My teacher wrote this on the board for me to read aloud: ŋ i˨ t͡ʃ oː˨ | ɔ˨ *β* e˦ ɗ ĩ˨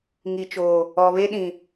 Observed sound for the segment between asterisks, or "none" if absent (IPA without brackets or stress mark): β